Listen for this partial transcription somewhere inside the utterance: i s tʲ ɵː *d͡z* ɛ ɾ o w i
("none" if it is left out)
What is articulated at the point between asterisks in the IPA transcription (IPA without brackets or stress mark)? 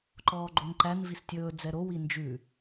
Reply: d͡z